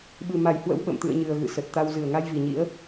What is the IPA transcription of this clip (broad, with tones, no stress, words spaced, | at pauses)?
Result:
ɓɨ˨˩ma˧˩jhwə̰˧˥w ɓə̰˧˨mt̪ɨ̰˧˨ə̯ɲɨ˨˩ə̯ ɣɨ̰˧˨sə˨˩t̚t̪a˧w zɨ˧˩ə̯ŋa˧jvi˨˩ɲḭ˧˥ə̯